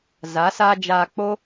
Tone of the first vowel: rising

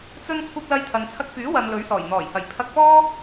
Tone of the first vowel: high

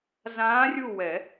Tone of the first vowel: rising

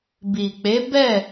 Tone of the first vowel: low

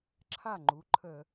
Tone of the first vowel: falling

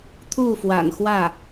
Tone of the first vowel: falling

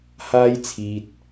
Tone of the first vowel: high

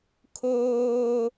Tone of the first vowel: high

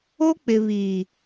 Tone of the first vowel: high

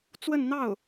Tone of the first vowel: falling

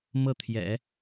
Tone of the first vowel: falling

